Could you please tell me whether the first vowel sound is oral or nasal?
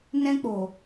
nasal